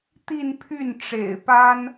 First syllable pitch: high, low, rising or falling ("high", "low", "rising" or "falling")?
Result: falling